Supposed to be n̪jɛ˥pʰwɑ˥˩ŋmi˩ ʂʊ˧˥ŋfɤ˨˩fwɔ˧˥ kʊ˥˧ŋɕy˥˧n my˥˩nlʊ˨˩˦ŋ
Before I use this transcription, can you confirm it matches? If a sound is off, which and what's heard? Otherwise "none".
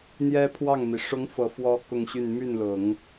none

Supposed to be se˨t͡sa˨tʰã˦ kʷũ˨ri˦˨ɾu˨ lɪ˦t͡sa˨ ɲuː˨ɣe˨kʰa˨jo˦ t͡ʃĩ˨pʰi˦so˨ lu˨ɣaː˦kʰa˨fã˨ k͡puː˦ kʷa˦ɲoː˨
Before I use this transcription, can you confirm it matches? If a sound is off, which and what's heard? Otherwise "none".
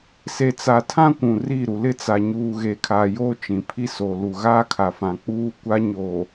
none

